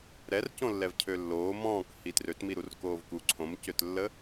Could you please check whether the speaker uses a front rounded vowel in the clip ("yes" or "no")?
yes